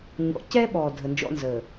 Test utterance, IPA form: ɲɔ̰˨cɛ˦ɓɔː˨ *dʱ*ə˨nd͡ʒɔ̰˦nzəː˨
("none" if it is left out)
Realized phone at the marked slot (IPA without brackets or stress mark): dʱ